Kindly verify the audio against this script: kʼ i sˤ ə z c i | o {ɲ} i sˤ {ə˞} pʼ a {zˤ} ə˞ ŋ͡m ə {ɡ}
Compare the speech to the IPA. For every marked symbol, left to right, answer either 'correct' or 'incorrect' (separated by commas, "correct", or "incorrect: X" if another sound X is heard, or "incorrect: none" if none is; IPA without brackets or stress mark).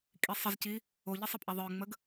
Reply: incorrect: ʎ, incorrect: ə, incorrect: ðˤ, correct